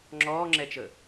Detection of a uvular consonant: absent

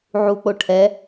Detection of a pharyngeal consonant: present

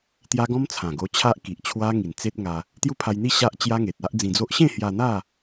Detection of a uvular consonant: absent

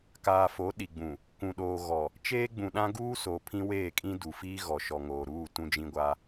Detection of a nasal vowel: present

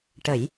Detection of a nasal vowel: absent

